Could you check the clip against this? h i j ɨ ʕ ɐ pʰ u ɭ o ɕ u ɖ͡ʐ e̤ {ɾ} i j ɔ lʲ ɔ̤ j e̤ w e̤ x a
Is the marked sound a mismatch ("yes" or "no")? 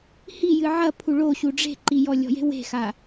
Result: yes